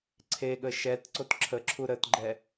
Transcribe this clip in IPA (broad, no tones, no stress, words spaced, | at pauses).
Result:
ǀʰeɠə ʃɛt ǀotǁʰəǁʰu ɾətɡ͡ǃɛ